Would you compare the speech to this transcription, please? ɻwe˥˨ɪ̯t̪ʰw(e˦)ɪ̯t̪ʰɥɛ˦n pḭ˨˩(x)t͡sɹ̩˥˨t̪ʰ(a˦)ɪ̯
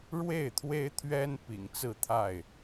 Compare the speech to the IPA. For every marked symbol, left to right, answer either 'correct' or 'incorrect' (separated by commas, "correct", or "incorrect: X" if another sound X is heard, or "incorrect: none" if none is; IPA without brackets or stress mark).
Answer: correct, incorrect: ŋ, incorrect: a˥˨